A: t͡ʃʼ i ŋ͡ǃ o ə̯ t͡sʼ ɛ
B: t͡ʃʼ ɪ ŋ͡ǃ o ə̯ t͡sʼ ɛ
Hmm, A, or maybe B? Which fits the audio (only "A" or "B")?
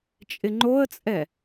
B